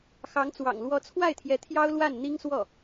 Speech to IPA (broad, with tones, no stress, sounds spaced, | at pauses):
x ɑ˧˥ ŋ t͡s w ɑ̰˨˩ ŋ l w ɔ˧˥ t͡sʰ w a˥˩ ɪ̯ t̪ʰ j ɛ˧˥ t̪ʰ j ɑ˥ ʊ̯ l w a˥˩ n n̪ i˥ ŋ s w ɔ˥˩